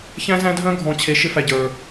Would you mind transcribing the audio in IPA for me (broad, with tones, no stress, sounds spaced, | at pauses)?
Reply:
ç æ̃˦ z æ̃˦ dʱ œ̃˦ ɡʱ ɔ̃˨ t͡ɕʰ e˨ ʃ ɪ˦ f æ˨ ɟ ə˞˨